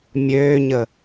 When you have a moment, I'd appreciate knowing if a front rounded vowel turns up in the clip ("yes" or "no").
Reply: yes